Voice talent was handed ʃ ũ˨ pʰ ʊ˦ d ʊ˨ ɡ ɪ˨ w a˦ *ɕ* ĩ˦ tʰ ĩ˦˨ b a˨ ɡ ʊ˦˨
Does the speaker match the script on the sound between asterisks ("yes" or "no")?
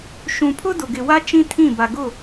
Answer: no